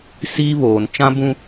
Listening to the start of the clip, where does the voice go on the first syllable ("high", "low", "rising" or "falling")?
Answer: high